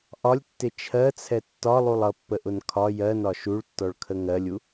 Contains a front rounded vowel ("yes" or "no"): no